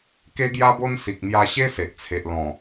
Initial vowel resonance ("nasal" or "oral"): oral